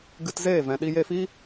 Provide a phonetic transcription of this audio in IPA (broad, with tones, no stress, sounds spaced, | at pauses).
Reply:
ɡ ɨ˧ t z eː˦˨ v ɛ̃˨ ɗ i˧ j e˧ f i˦